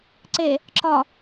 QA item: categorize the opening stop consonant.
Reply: click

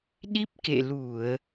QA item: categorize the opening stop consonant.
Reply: implosive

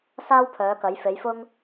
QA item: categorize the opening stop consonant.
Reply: aspirated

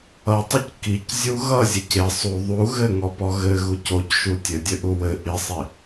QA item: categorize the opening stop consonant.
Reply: plain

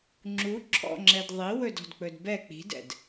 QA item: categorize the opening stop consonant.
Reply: click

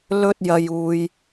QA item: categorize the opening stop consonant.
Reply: plain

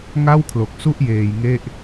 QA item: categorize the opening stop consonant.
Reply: aspirated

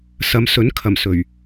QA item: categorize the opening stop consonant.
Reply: aspirated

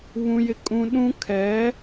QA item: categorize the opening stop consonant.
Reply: ejective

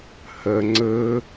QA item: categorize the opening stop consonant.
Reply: click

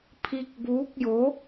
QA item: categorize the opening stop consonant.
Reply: aspirated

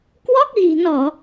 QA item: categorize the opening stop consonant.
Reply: plain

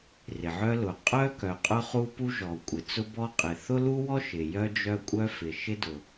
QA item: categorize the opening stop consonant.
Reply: ejective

